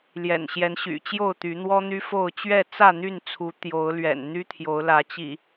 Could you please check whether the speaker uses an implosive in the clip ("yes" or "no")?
no